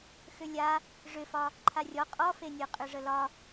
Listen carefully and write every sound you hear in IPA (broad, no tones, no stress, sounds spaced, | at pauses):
x ʏ lʲ a | ʐ ʏ f ɒ | ǃʰ a rʲ ɔ qʼ ɔ f e nʲ ɤ qʼ ʏ ʐ ə l ɒ